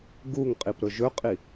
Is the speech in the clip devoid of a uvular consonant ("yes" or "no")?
no